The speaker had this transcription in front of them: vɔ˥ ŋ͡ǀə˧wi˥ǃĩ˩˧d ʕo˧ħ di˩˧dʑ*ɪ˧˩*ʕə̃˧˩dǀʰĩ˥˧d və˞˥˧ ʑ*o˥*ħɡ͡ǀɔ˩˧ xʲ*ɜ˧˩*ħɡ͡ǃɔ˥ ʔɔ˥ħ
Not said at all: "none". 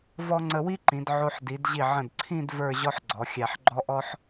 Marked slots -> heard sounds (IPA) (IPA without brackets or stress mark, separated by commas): i˧˩, ɔ˥, æ˧˩